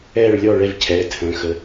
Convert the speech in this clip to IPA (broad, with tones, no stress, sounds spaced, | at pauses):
ɛː˥˩ ɭ lʲ ɔ˥˩ ɭ ɛ˥˩ v cʰ ɛː˩˧˩ tʰ ə̃ː˩˧˩ x ə˨˦